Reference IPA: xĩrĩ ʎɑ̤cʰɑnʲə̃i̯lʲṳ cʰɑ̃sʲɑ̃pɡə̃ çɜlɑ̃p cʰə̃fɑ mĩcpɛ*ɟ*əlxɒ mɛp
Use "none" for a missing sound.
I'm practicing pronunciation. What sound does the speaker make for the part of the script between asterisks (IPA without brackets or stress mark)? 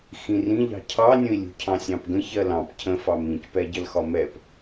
ɟ